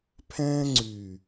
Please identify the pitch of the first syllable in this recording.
high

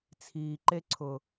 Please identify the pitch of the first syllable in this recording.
low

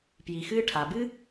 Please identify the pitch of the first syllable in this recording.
low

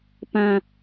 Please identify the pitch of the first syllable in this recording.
high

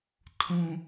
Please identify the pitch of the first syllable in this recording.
high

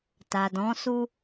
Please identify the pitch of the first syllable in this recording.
low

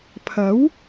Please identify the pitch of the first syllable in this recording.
rising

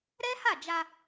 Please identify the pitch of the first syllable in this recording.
high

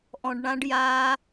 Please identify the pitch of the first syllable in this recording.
low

